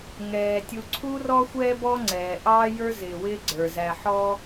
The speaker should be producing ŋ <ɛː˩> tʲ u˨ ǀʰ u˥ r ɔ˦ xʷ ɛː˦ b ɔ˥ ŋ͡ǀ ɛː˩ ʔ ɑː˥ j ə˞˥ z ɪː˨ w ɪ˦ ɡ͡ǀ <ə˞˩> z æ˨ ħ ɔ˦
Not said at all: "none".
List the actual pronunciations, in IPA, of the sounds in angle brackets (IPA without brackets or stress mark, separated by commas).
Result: ɛː˩, ə˞˩